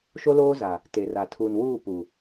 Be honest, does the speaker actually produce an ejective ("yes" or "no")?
no